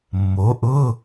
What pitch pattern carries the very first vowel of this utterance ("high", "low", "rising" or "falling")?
rising